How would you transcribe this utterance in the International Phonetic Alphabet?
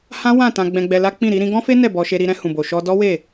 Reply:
h ã˦ w ã˦˨ t ã˧ ɡ͡b ɛ̃˧ ɡ͡b ɛ˧ l a˦ k͡p ĩ˦˨ ɾ i˨˦ ɾ ĩ˧ ɡ ɔ̃˦ f e˦ n ɛ˦˨ b ɔ˧ ʃ e˧ ɾ i˧ ɾ ɛ̃˧ h ũ˨ b o˨ ʃ ɔ˧ d ɔ˦ w e˦˨

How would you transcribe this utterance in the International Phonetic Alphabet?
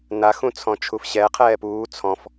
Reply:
n a x ũ t͡sʰ ɔ̃ t͡ʃʰ u f ɕ ɛ qʰ ɛː p uː t͡sʰ ɔ̃ f

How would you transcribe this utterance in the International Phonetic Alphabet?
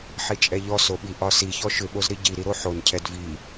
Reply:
ħ i t͡ʃʼ ɛ ʎ ɔ s o ɓ i ʔ ɒ s i ç ɔ ʃ ʏ ɓ o z ɾ i ɟ i ɾ i ɾ o ħ o n cʰ ɛ d v i

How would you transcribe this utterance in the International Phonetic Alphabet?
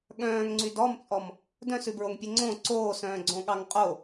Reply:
ɠ œ̃ː ŋ ŋ͡ǀ y d ɔ m t͡sʼ ɔ m | d œ̃ s ʉ b ɹ o ŋ pʲ e ŋ͡ǀ õ ǀ oː s œ̃ː ɡ͡ǀ õ ɠ ɑ ŋ qʼ o

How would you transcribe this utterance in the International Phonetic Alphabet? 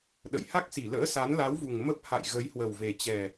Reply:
ɗ ə̰˧˨ j h a˦˥ k̚ s i˧˩ l ə̰ː˧˥ s a˨˦ n l a˨˦ w v u˨˩ ŋ m ə˦˥ p̚ h a̰˧˨ j ɣ ə˨˦ j h w ə˨˩ w v e˨˩ t͡ɕ ɛ˨˩

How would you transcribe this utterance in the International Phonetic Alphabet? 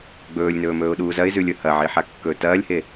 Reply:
ɡ͡b ɵː lʲ n ɵː m ɵː ʊ̯ ɗ uː z ɐ ɪ̯ z ʉ lʲ ɵ h ɐ ʕ i ħ a kː ɵː t ɐː lʲ h e

